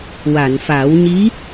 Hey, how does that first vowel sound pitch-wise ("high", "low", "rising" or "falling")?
low